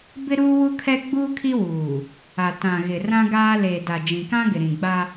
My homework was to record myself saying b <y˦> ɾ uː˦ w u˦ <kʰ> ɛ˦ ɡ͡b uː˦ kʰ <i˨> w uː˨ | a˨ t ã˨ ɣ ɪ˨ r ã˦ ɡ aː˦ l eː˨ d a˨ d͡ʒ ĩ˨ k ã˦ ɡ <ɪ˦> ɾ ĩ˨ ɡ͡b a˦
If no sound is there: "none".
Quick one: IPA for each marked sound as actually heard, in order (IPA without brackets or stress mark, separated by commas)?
ɪ˦, kʰ, i˦, ɪ˨